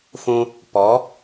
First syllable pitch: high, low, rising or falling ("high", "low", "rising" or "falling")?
high